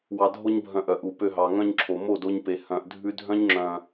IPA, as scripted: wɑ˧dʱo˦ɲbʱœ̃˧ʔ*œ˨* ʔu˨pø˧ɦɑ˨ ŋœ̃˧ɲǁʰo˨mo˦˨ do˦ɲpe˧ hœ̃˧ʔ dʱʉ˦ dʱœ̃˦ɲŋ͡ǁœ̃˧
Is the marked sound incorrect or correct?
correct